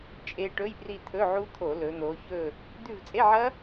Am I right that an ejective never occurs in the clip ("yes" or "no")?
no